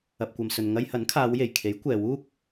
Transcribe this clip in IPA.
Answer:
ɐ˨ p̚ kʷ ɐ˨ m s ɵ˨ n ŋ ɐ˧ j h ɐ˨˥ n kʰ aː˨˧ w j e˨˩ j kʰ e˨˥ j kʷ ɛː˨ w uː˥ k̚

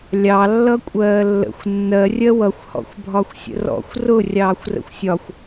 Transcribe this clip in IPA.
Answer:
lʲ ɑ lː ʌ kʷʼ ɜː lː ə̰ xʷ nː ɜ rʲ ɜ w ʌ xʷ h ɔ̰ xʷ bʱ ɒ xʷ sʲ ə̰ r ɔ̰ xʷ r ʊ rʲ ɑː xʷ r ə̰ xʷ sʲ ɒ xʷ

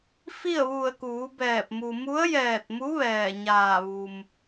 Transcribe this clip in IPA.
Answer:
f i˥˨ ə̯ ʋ u˧˩ ə̯ k uː˩˧ b ɛː˧˩ p̚ m u˩ m u˧˥ ə̯ j ɛː˧˩ t̚ m u˧˥ ʋ ɛː˧˩ ɲ aː˧˩ ʋ u˩ m

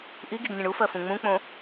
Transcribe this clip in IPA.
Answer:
ʔ i ɡ i ɡ nʲ ə̃ ɳ u f ɜ f ũ ŋ͡m ũ k͡p õ

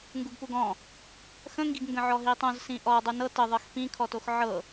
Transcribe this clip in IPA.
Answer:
ŋ ɡ u ɡ p u ɡ ɔ̃ | x ə̃ ŋ ɡ i ɡ ŋ ɡ ə̃ ʕ ɔ ɦ i tˤ õ z s ĩ ʔ ɔ dˤ u n ɤ t ə ðˤ ɤ x p ĩ kʰ ɔ t o x ʕ ɤ

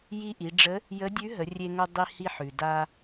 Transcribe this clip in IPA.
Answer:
j i˧ ʔ i˩˧ ɖ͡ʐ ə˧˥ | j ə˧˥ dʲ ʉ˧˥ ɦ ə˩˧ rʲ e˧ ŋ o˧ dˤ i˧ h i˧ ħ ʉ˩ d a˧

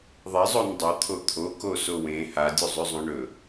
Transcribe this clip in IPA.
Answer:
ðˤ e zˤ o n dˤ ɵ t̪ʰ o t̪ʰ o k o s o w ẽ h a dʲ u zˤ ʉ zˤ õ ɳ ɵ

